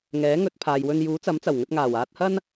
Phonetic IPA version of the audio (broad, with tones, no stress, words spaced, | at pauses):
ŋɛː˨˥ŋɵ˨˥t̚pʰaː˨jwɵ˧n juː˨˥t͡sɐ˨˥mt͡sɐ˨˩wŋɵ˧t̚ ŋaː˨˩waː˧t̚hɐ˥n